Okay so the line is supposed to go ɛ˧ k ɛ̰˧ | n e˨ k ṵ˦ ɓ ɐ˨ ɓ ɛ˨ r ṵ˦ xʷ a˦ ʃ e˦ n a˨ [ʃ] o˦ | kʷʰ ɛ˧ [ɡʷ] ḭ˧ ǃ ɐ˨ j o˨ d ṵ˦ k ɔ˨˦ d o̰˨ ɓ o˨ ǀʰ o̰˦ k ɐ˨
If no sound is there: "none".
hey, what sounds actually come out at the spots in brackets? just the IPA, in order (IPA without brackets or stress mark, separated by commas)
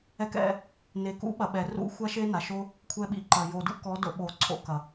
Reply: ʃ, ɓ